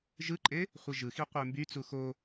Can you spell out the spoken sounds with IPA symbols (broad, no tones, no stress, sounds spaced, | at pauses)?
ʒ ɯ ǃʼ e | χʷ i ʒ ɯ x i qʷ e m b y t͡s u x o